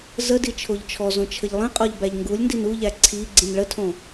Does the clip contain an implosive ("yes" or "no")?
no